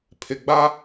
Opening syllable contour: low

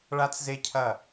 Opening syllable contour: high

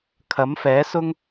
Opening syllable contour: rising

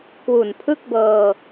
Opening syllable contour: low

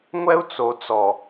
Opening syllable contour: high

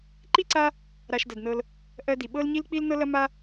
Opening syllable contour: high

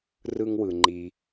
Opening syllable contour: high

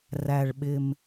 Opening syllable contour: low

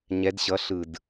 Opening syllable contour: rising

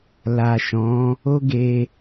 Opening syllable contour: low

